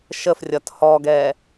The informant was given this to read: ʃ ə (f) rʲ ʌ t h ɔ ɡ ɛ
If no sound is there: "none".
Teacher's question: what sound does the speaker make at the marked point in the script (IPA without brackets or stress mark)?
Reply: f